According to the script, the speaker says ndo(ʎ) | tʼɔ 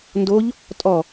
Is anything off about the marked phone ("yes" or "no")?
no